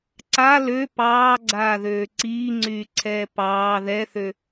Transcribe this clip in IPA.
ǀ a l ø p ɑː ɡ͡ǀ aː ð øː ǀ iː ŋ͡ǀ yː ǀʰ ɛː p ɑː ð ɛ θ ø

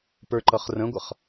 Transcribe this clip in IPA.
p ə˞ ǃ ʌ χ r ə̃ ɡʷ ʌ χ

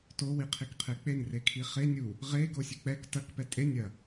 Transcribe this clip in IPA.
t o w i qʰ i k qʰ e k͡p e n r e kʰ i χ e nʲ u | ʁ e ɡ o sʲ ɨ k͡p ɛ k t ɐ k p ɛ tʼ e nʲ ɐ

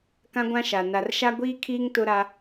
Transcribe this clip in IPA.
k ã˦ ɡʷ ã˦ ʃ a˨ n a˨ r ʃ a˦ ɡʷ iː˦ kʰ iː˦ ŋ t ʊ˦ ɾ a˦

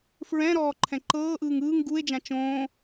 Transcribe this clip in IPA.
f ɹ ɛ̃ ɾ ɔː ǃʰ ɛ̃ ǃ ɤː ʔ ɯː ŋ ɯː ŋ ɡ u e̯ d͡ʒ ã t͡ʃ õː

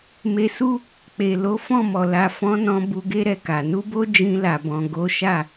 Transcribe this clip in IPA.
m e˧ s u˦ | k͡p e˨ l o˨˦ f ɔ̃˦˨ m ɔ˨ l a˨ f ɔ̃˨˦ n ɔ̃˧ b u˧ ɡ e˦ ɾ ɛ˧ k a˨ n u˧ b o˧ d͡ʒ ĩ˧ l a˨ b ɔ̃˨ ɡ o˨˦ ʃ a˦˨

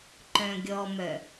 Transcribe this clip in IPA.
ǃ œ̃ ɡʲ ɔ m œ

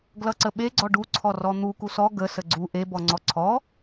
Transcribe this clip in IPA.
ɡ l ʌ ǀ ə ɓ e ɡ͡ǀ ɔ ɖ u ǀʰ ɔ r ɔ n̪ u k u s ɔ ɡ ə s ə ɡ͡ǀ u ʔ e b ɔ ŋ͡ǀ ɔ ǀʰ ɔ

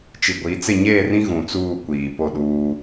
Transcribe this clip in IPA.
t͡ʃ i˨ ɡʷ i˨˦ t͡s ɪ˦˨ ɲ eː˦˨ r ĩ˦ ɣ ũ˨ t͡s uː˦˨ kʷ iː˨ p o˦˨ ɗ uː˦

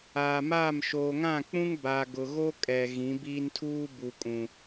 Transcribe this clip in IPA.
aː˨ m aː˦˨ m ʃ oː˨ ŋ ã˦˨ k͡p ũ˦ ŋ b a˨ ɡ ʊ˨ ɣ o˦ kʼ ɛ˨ ɣ ĩ˨˦ b iː˦ n tʰ uː˦ b u˨ kʼ ũ˨

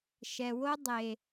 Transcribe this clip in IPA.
ʃ ɛ˨ w o˦ dˤ e˨

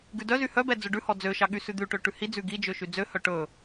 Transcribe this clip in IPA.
ɡ ʉ d œ z y h œ b ɛ d͡z ɵ ɖ ʉ h ɔ d͡z ø ʃ ɑ ɠ y s ʉ d̪ ʉ ʈ ø ʈ ʉ h i d͡z ʉ ɡ i d͡ʒ ø ʃ y d͡z ø h œ ʈ ɵ

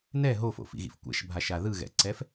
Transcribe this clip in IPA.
n ɛ ɦ o f o̰ f ḭ ɣ ḭ f kʷ ɛ̰ ʃ bʱ a ʃ a ð ɯ ɣ ɛ̰ ǀ ɛ f

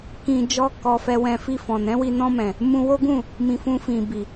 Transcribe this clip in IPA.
k ĩ˧ d͡ʒ ɔ˦ k ɔ˧ f ɛ˧ w ɛ̃˧ f i˧ f ɔ̃˨ n ɛ̃˨˦ w i˧ n ɔ̃˧ m ɛ̃˨ | m ũ˧ w o˦ ɡ ũ˦˨ | m ĩ˨ f ũ˧ f ĩ˨ b i˨

